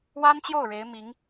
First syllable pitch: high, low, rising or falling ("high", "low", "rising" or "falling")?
high